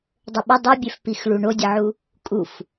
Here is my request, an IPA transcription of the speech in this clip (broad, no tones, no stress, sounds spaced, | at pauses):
dˤ ə ɓ ə dˤ ə bʲ ɛ f p i x ɭ u ɳ o dʲ ə ʕ u | kʼ u f